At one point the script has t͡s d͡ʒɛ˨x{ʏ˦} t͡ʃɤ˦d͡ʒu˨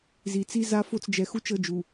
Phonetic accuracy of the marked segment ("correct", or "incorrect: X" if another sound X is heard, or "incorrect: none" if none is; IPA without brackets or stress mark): incorrect: u˦